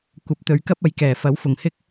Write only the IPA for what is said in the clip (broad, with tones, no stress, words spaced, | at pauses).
kʷɐ˨˥p̚t̪ɵ˨˧ɥkɐ˥p̚ ɐ˨˥jkɛː˨˩ fɐ˨˥wfʊ˨˩ŋhɪ˥k̚